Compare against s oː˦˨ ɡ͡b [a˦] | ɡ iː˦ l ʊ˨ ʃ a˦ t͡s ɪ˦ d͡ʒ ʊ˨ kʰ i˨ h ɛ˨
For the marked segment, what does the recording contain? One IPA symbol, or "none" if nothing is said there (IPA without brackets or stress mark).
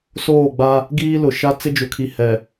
a˦